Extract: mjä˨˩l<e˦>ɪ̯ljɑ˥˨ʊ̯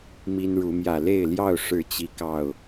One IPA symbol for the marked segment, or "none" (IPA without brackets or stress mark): e˥˨